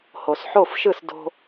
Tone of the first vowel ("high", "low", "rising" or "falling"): low